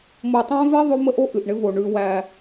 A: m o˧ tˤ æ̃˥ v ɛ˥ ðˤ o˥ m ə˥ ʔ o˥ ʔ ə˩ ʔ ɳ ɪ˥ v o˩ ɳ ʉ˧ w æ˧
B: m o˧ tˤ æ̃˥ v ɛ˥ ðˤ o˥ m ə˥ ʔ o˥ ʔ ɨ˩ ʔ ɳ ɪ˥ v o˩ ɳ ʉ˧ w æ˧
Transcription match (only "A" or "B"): B